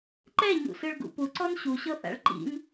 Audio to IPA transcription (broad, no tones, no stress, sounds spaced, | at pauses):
ǃ ɛ ɲ ṵ s ɯ ɭ ɡ ṵ p u ǀ ɔ n ɕ u ɕ ɤ θ a̰ ɭ ǃ ḭ n